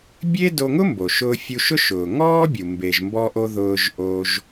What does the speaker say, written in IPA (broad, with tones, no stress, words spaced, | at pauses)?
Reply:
bʲe˥ do˧ŋʊ˥mbo˩ ʃʊː˧fʲu˧ʃʊ˥ ʃʊː˩ŋɔː˥bʲu˩ mbe˩ʒmbɔ˧ʔo˧ ðʊː˧ʒʔo˧ʒ